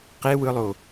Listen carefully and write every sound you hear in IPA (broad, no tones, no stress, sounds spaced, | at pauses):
q e w ɯ lˠ o